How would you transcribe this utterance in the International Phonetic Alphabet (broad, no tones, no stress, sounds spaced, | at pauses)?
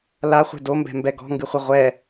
l a χʷ e̤ d o m b ɛ̤ m b ɛ ɡ ɔ̤ ŋ ɡ ɨ χʷ ɐ ʁʷ ɛ